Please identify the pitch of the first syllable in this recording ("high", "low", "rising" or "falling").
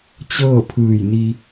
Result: falling